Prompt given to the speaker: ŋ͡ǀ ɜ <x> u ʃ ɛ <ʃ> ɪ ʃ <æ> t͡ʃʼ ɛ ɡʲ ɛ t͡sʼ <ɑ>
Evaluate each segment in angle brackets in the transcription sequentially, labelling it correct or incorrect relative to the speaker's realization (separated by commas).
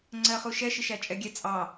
incorrect, correct, correct, correct